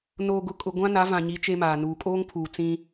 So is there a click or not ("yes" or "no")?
no